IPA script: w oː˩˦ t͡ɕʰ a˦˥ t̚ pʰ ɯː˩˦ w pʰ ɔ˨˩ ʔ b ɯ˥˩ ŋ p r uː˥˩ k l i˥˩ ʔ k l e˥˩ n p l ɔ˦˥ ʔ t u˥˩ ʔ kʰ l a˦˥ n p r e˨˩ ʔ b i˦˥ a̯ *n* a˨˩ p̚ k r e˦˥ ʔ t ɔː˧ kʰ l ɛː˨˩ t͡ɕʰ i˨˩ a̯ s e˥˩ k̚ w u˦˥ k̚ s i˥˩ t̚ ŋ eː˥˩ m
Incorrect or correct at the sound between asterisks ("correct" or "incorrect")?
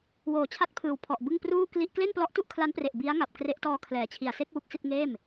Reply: incorrect